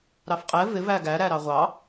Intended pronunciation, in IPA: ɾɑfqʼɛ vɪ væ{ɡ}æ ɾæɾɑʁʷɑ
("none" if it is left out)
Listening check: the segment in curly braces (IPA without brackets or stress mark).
ɡ